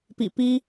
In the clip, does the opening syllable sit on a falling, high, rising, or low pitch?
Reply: low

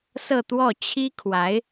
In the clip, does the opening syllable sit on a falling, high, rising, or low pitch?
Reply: falling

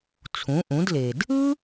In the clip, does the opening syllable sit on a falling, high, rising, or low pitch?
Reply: rising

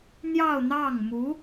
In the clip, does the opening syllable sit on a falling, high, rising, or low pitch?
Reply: falling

